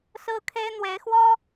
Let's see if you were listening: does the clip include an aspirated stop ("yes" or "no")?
yes